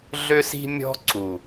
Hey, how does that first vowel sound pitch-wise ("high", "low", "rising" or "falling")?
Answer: high